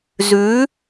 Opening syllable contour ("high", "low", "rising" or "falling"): rising